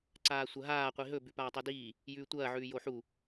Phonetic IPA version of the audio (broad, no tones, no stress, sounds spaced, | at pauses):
ǀ aː sʷ ɐ ɦ aː qʷ i ɦ ɵ b ʉ p aː tˤ o d iː | j ʉː tʷ ɐː ʕ ʉː j o ħ u